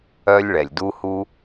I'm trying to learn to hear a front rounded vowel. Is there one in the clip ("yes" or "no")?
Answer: yes